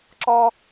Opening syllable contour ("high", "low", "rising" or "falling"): high